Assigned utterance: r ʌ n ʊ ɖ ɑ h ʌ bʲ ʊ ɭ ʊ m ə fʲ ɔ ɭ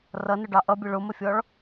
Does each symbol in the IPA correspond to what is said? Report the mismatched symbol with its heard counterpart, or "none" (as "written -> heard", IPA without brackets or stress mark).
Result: h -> ʔ